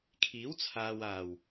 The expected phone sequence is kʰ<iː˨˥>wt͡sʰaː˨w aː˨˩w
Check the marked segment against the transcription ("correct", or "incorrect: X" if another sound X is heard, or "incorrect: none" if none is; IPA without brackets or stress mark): correct